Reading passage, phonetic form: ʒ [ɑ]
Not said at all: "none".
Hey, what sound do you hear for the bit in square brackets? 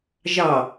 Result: ɑ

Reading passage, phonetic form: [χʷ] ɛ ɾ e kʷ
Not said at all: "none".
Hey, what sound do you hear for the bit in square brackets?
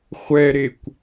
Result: χʷ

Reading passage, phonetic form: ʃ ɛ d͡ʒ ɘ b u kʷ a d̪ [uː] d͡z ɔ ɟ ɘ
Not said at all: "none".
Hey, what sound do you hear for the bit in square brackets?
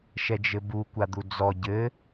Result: u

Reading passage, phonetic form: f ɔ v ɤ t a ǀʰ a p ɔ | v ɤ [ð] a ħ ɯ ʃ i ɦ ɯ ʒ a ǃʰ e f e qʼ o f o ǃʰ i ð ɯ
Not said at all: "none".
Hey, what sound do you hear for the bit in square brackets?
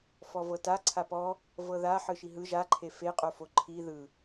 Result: ð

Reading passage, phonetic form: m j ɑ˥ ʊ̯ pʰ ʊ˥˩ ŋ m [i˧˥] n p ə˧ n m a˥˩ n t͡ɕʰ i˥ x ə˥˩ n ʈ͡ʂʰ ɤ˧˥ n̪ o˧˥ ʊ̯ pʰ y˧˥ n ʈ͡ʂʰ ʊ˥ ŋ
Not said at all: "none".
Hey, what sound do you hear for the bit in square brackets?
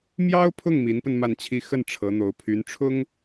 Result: i˧˥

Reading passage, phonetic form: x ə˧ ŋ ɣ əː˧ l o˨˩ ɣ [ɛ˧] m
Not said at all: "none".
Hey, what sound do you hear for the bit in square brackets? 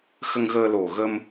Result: ə˧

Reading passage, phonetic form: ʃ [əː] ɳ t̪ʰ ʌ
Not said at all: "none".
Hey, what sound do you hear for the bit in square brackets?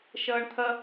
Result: ʌː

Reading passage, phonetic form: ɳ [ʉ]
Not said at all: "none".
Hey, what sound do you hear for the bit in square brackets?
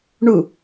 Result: u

